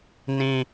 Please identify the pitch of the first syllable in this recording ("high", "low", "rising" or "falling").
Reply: low